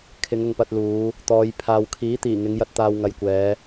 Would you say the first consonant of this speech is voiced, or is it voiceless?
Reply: voiceless